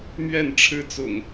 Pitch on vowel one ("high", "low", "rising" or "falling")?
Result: falling